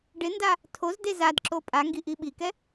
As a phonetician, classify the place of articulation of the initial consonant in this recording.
retroflex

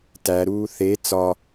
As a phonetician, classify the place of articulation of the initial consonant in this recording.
alveolar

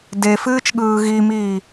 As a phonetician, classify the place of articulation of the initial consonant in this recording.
alveolar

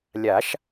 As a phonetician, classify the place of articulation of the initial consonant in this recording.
alveolar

